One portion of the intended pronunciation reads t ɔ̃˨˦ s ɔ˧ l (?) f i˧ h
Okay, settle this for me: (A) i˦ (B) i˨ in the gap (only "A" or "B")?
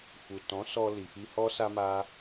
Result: B